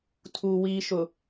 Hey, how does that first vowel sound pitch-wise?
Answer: low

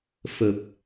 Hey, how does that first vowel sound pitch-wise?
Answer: low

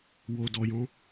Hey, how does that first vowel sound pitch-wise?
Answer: low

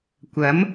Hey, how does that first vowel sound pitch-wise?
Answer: rising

